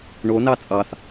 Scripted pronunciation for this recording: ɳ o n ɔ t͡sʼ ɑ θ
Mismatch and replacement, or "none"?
ɔ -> ɑ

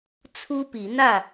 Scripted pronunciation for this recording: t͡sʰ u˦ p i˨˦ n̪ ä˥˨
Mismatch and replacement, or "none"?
none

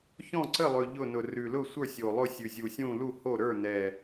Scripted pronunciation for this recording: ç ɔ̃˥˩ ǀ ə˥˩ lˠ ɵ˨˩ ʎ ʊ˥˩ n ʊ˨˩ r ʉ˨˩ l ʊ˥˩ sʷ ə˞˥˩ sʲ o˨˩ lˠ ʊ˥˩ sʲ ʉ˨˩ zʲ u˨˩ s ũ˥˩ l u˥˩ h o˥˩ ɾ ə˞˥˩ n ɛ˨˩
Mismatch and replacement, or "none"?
s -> sʲ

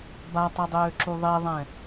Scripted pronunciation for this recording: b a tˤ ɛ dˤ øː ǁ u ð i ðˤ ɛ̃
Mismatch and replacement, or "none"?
ð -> ðˤ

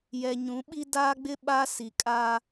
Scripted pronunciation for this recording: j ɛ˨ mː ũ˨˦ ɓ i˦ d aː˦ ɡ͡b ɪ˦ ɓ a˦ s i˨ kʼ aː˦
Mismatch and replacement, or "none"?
mː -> ɲ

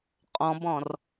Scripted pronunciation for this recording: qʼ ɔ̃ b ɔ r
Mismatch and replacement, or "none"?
ɔ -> ɔ̃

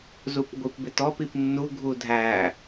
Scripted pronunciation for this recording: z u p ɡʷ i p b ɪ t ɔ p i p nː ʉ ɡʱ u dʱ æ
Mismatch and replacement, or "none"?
ʉ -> u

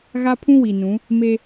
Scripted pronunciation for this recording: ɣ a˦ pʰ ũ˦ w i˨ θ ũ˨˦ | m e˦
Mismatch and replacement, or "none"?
θ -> n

